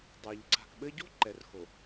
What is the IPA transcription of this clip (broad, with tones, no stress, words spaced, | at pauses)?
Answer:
dˤɛ˨ʎ ǀa̤˨kɓɘ˦ ɟo̤˦ ǃɛ˨rxo˨